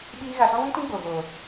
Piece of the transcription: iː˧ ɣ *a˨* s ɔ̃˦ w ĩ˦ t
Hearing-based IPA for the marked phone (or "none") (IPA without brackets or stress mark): a˨